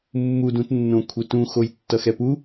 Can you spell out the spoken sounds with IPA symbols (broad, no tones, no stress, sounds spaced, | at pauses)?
mː u d ũ t nː õ kʷʰ e t ũ x o j tː ʌ x ɛ p u